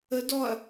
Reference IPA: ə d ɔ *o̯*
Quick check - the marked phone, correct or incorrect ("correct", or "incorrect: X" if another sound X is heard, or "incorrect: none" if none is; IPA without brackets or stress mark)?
incorrect: ɐ̯